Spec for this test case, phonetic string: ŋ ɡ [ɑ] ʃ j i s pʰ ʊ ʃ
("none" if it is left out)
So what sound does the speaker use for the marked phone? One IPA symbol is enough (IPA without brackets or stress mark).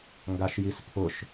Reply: a